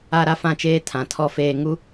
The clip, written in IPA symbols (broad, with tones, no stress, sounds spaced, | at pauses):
a˦˨ ɾ a˦ f ã˦˨ t͡ʃ eː˦ tʰ ã˨ tʰ ɔ˦ f eː˦ ŋ u˦